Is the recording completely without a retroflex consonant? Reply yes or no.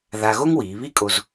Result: yes